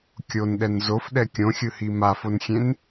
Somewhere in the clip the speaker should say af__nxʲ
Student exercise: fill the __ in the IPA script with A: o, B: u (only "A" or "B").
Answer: A